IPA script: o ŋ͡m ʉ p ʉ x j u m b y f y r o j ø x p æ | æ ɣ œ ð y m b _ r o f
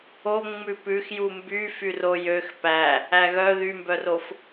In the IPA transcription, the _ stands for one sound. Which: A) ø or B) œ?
B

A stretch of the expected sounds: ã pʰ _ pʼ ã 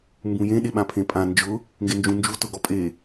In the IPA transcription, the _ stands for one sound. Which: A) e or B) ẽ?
B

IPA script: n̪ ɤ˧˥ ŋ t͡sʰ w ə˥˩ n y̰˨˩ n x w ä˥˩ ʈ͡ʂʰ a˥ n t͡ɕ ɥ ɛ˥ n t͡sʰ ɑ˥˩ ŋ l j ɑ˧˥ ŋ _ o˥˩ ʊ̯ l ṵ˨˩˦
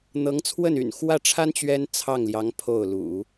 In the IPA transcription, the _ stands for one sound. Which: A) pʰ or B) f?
A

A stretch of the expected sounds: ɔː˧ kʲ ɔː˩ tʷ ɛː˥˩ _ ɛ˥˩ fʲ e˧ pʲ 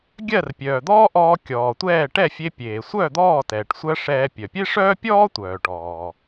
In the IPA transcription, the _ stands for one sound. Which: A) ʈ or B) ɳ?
A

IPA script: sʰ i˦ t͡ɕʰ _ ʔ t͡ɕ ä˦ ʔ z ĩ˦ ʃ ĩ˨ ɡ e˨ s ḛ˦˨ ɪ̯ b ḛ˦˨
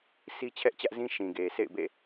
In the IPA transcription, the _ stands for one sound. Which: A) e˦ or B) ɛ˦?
B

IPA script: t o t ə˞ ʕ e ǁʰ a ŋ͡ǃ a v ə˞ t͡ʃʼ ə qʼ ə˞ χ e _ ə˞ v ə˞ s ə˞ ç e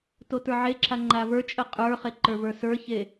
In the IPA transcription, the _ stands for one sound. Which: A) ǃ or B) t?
A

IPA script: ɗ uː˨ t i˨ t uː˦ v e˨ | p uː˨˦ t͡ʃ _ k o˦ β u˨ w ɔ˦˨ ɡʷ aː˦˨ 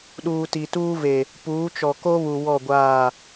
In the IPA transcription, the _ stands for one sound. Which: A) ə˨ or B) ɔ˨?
B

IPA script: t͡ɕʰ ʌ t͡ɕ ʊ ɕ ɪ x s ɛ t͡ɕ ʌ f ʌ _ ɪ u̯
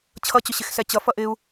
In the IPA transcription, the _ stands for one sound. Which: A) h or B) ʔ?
B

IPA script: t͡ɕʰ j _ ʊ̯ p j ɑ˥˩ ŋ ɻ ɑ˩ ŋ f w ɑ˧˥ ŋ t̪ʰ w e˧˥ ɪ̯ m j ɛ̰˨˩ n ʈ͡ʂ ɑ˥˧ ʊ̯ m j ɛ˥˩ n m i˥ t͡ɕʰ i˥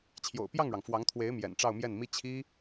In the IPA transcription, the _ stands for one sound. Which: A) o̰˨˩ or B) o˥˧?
A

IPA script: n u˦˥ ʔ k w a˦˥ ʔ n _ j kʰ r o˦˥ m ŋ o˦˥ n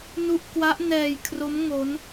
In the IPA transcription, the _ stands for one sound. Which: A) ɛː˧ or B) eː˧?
A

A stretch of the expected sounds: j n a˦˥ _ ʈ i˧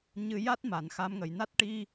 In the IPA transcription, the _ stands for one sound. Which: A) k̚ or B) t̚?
B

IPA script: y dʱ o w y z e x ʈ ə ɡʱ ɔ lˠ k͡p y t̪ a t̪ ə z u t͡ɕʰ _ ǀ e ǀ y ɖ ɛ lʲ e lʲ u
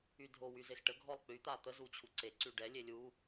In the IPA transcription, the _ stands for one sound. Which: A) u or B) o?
A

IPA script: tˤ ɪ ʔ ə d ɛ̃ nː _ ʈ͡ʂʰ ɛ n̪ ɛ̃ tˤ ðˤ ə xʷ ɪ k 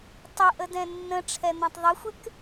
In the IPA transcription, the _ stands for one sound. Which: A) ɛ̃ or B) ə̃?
B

